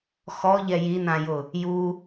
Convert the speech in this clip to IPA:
x ɔ ʎ ɛ j i n ã j ʊ | j u

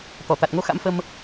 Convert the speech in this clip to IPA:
t̪ ɔ˧˩ t̪ a˨˩ t̚ ŋ o˧ x a̰˧˥ m f ə˧ m

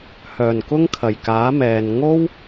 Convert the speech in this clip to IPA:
h œː˨˩ n k ʊ˥ ŋ kʰ ɐ˨˩ j k aː˨˥ m ɛː˨ n ŋ o˥ w

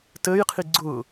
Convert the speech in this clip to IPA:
t əː j qʰ i ɡ͡ǀ ʊː

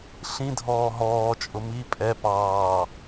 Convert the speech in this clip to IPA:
ɬ ĩ dʱ ɔː ɦ ɔː t͡ʃʼ ʊ m i pʼ ɛ p ɑː

